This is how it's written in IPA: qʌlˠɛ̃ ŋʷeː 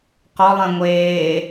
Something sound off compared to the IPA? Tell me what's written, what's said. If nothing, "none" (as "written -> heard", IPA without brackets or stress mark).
ʌ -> ɔ